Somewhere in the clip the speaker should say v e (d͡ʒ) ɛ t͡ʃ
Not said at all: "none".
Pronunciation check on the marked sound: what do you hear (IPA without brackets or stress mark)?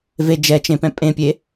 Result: d͡ʒ